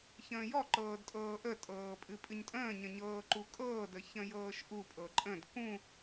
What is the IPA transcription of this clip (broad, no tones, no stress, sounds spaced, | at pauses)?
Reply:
ç ə̃ː j ɔ ǃ ɤː d tʼ ɤː ʔ ə tʼ ɤː pʼ ɨ pʼ ɨ ɲ tʼ ə̃ː ɲ ə̃ ɲ ɤː ǃ u kʼ ɤː d ə ç ə̃ j ɤː ʃ ʔ u pʼ ɤ ǃʼ ə̃ d k ũ